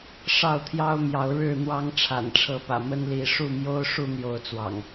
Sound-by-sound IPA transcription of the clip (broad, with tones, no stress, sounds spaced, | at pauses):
ʂ ɑ˥˨ ʊ̯ t̪ʰ j ɑ˦ ʊ̯ m j ɑ˨˦ ʊ̯ ɻ ɻ̩˥˨ n̪ w ɑ˦ ŋ ʈ͡ʂʰ a̰˨˩ n ʈ͡ʂʰ ɤ˨˦ p ä̰˨˩ m ə˦ n l i˨˦ ʂ u˥˨ m j o˦ ʊ̯ ʂ u˥˨ n̪ j o˨˦ ʊ̯ t͡s w ɑ̰˨˩ ŋ